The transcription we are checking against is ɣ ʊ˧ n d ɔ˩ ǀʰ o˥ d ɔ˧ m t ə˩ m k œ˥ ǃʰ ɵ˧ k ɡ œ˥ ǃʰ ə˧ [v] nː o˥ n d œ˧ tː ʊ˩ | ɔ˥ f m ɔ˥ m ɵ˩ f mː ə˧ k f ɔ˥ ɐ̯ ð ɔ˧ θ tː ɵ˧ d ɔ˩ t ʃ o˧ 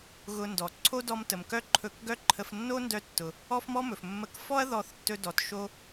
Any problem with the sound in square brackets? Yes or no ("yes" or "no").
yes